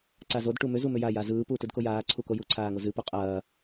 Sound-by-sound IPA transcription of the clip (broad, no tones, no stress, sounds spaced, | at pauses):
ǀ a z o d ʈ u m ʏ z u m ʏ j a j a z ɯː p uː t ɯ d k o j aː ǀʰ u k o j u ǀʰ aː ŋ o z ɨ p u qʼ ɐː